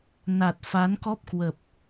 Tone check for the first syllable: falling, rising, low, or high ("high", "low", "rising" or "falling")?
low